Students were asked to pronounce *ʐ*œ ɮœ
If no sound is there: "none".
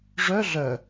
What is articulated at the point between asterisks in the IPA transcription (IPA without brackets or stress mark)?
ʐ